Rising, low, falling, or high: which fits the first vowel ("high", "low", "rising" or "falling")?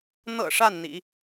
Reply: low